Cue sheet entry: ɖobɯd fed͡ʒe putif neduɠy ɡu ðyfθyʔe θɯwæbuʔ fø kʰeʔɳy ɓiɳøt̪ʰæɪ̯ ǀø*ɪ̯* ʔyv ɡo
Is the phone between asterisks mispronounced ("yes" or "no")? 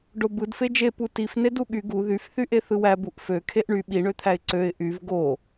no